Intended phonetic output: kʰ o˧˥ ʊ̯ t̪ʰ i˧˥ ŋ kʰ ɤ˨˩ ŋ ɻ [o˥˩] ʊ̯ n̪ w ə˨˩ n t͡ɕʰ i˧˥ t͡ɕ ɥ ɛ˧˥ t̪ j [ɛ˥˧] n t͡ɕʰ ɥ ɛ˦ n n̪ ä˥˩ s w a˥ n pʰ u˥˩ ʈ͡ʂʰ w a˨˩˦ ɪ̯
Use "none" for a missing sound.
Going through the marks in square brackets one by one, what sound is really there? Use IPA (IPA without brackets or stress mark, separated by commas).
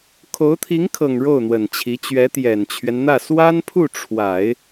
o˥˩, ɛ˨˩